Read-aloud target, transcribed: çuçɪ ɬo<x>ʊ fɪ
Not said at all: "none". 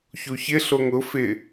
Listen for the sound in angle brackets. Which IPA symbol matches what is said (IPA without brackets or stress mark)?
ŋ